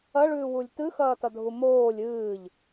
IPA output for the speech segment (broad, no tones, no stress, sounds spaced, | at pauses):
ɐ ɭ ʉː w u lʲ t ɨ x ɐː t ɐ dʱ u m oː lʲ ɨː ʎ